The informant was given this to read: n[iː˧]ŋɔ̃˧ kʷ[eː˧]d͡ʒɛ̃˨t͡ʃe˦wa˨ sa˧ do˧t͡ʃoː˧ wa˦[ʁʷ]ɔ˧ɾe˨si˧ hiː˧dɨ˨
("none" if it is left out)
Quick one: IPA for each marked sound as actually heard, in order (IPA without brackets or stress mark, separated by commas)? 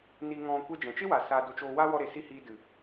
i˧, e˧, w